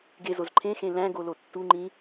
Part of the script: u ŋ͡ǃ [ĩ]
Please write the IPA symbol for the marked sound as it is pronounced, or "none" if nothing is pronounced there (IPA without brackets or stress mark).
ĩ